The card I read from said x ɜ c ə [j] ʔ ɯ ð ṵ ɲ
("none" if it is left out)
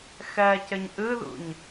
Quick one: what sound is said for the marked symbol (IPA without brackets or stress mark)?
ɲ